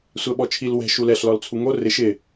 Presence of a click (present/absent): absent